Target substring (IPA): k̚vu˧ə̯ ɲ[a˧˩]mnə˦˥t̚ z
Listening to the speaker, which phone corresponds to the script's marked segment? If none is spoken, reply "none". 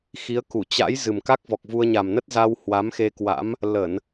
a˨˩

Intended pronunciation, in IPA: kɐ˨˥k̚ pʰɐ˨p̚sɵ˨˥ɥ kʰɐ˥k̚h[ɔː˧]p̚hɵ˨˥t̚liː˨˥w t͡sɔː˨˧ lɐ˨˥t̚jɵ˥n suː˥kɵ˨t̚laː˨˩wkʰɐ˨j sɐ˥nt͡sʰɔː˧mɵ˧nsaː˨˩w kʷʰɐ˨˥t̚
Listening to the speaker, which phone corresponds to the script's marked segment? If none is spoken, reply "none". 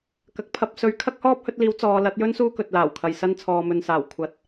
ɔː˥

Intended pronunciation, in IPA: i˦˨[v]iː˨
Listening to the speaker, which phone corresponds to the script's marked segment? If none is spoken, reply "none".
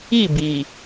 b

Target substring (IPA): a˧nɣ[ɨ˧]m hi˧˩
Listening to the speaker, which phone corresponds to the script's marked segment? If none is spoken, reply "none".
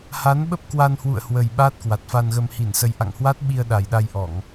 ə˧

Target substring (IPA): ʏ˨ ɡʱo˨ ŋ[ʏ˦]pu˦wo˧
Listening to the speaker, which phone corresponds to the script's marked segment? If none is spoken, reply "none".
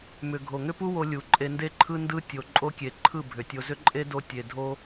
ʏ˦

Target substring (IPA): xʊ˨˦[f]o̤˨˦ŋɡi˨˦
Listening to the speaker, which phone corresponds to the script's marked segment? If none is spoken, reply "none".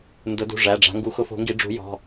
f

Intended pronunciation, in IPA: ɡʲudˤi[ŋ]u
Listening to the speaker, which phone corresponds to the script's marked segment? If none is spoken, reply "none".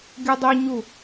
ɲ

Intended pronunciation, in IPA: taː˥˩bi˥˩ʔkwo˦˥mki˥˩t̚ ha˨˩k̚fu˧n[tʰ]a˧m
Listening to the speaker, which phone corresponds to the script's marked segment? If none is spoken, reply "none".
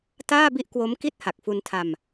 tʰ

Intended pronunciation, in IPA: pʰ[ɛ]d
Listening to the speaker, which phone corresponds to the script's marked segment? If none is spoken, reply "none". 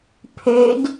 ø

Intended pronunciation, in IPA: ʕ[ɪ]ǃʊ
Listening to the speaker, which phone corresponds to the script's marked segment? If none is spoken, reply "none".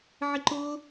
ɪ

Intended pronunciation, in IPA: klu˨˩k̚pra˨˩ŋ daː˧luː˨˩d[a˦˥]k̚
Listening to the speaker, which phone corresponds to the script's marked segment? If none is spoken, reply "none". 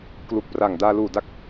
a˦˥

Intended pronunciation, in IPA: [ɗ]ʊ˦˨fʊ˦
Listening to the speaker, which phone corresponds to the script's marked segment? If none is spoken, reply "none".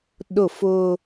ɗ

